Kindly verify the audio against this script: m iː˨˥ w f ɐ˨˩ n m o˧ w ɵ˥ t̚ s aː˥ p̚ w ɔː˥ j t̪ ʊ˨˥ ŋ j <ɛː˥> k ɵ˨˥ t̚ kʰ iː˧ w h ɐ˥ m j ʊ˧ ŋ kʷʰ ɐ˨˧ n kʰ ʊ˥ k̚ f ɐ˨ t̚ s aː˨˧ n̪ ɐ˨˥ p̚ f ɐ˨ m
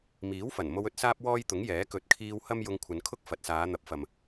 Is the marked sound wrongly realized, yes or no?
yes